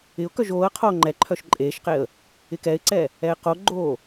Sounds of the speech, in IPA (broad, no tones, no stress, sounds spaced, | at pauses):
ɪ ʊ̯ k œ ʒ oː ə̯ qʰ oː ŋ͡ǃ ɛ ǃʰ œ ʃ ǃʼ eː ʃ q e ə̯ | ɪ k ɛ ɪ̯ ǀ ɛ | ɛ ɪ̯ q o ɡ͡ǃ oː